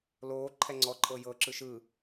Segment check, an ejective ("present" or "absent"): present